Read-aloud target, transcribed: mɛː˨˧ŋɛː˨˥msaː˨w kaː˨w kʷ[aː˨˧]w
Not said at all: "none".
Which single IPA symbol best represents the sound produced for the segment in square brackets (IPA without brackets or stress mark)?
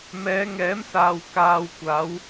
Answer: aː˨˧